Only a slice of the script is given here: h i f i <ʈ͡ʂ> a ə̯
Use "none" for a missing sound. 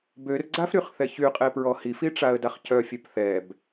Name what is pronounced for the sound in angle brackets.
ʈ͡ʂ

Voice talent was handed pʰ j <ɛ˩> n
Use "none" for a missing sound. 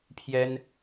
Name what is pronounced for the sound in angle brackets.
ɛ˥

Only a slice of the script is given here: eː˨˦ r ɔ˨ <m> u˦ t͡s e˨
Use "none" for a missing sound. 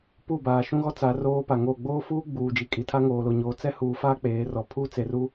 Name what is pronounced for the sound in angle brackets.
pʰ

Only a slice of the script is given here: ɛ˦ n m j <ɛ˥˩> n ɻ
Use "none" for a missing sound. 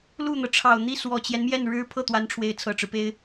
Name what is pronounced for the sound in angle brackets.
ɛ˥˩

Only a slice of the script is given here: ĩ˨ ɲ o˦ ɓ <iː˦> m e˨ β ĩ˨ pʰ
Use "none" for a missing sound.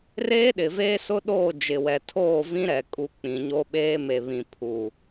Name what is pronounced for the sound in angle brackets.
eː˦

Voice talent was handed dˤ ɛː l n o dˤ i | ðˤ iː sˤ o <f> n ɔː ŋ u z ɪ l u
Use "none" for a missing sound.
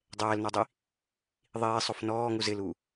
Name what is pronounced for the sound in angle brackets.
f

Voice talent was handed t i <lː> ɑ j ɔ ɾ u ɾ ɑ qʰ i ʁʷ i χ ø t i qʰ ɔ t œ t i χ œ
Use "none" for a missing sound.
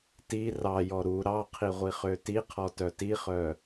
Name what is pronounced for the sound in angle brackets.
r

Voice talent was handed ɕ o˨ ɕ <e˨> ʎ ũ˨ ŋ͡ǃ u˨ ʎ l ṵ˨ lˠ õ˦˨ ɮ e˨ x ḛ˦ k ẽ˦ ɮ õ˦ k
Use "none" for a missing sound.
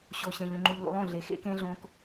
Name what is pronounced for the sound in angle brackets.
ẽ˨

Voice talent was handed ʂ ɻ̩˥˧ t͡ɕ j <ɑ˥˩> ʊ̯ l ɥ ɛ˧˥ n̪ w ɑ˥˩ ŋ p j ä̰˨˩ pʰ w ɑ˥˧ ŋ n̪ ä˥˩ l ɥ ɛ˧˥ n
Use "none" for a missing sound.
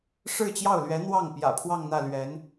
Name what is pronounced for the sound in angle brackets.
ɑ˥˩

